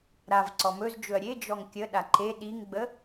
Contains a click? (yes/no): yes